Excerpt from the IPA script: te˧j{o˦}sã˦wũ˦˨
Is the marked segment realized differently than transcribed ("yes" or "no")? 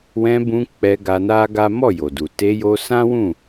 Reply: yes